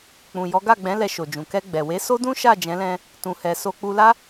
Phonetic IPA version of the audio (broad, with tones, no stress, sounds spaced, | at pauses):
k͡p ũ˨ j ɔ˨˦ ɡ a˦˨ ɡ͡b ɛ̃˨˦ l ɛ˧ ʃ o˨ d͡ʒ ũ˨ k ɛ˧ ɡ͡b ɛ˨ w e˨˦ s o˦ d ũ˦ ʃ a˦˨ d͡ʒ ɛ̃˨˦ l ɛ̃˧ | t ũ˨ h ɛ˨ s o˧ k͡p u˧ l a˦